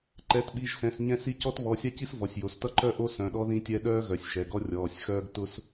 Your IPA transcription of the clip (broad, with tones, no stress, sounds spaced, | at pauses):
ǃ ɛ˩˧˩ t ɓ i˩˧˩ ʒ s ɛ̃˩˧˩ s ɲ ɛ̃˥ s i˥ c ɔ˥ t β ɔ˩˧˩ sʲ a˥ c i˥ s v ɔ˩˧˩ sʲ j o˩˧˩ s t ʌ˥ ǃ œ˥ ʔ o˥ s œ̃˩˧˩ ɗ ɔ˥ ð ĩ˥ tʲ ɛ˥ ɗ œː˥ ɣ œ˩˧˩ sʲ ʃ ɛ˩˧˩ ɡ ɔ˥ rʲ ɔː˩˧˩ sʲ x œː˥ ɡ t ʊ˥ s